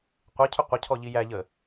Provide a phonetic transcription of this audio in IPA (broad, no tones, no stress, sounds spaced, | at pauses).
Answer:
qʷ e cʰ ʏ qʷ ə cʰ ɔ ʎ i j æ ʎ ə